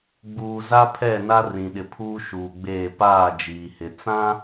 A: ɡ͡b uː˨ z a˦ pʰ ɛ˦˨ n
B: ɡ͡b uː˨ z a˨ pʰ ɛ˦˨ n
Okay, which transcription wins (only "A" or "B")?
A